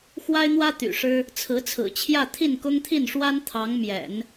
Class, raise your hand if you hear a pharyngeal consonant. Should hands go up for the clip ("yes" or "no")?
no